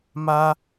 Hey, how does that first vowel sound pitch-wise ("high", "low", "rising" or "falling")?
high